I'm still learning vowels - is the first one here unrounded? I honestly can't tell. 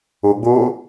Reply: no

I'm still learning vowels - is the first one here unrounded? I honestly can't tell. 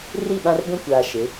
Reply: yes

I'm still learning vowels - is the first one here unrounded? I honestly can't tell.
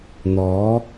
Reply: no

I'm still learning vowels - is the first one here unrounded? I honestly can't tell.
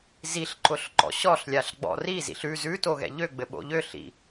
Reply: yes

